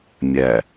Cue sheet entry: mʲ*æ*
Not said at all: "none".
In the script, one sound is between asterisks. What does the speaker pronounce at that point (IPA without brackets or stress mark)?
æ